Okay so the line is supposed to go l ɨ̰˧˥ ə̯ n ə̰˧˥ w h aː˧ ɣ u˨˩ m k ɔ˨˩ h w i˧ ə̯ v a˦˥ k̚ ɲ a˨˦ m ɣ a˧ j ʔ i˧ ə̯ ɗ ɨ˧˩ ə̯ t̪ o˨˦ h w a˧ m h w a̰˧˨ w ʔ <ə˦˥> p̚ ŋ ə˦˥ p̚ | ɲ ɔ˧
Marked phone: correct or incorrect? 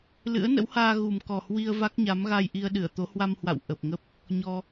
incorrect